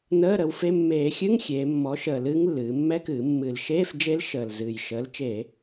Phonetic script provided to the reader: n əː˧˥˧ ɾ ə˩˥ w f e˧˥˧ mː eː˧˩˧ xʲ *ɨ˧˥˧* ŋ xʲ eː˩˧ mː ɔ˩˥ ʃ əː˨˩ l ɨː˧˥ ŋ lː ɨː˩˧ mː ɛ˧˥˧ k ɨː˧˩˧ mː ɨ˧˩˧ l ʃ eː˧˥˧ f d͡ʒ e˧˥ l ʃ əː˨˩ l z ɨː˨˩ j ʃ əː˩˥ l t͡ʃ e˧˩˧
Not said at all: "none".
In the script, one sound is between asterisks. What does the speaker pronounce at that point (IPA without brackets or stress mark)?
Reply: ɨ˧˥˧